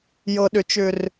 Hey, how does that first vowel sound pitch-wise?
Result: low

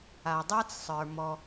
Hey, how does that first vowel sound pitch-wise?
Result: low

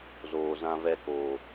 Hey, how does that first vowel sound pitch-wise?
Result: low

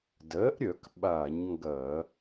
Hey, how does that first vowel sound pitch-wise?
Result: rising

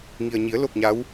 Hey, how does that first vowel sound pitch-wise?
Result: low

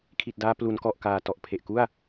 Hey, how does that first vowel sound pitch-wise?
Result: low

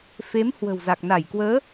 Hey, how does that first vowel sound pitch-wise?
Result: rising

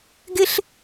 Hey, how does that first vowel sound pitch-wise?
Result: high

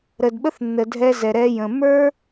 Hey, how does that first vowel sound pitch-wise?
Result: low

